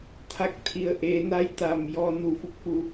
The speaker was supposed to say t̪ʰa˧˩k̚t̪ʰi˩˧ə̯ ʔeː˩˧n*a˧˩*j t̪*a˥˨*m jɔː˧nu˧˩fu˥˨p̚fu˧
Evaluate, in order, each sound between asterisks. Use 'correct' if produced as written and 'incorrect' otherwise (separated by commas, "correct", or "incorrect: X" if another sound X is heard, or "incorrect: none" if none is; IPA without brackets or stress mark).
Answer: incorrect: a˧, incorrect: a˩